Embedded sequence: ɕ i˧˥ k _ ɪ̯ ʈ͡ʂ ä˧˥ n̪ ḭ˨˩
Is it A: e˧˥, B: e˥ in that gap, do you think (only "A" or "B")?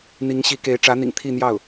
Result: A